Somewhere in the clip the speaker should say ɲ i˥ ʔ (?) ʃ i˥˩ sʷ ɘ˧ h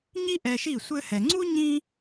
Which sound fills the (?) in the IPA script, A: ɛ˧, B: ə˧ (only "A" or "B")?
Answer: A